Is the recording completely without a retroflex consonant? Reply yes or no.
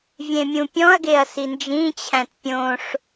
no